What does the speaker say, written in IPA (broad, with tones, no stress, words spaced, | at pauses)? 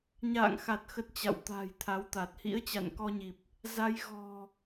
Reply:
ɲa̰ː˧˨ŋxa˨˩t̚xə˨˩t̚ t͡ɕa̰˧˨wt̪a̤ː˨˩j t̪ʰa˨˦wt̪a˨˩t̚ hḭ˧˥ə̯t͡ɕa̰˧˨nkɔ˧ɲi˨˩p̚ | za˧j ɣɔ̤˨˩